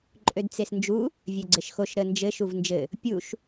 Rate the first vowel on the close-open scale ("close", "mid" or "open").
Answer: mid